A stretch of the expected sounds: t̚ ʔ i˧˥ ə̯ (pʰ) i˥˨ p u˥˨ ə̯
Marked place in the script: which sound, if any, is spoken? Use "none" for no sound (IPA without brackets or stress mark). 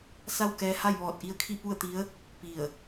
kʰ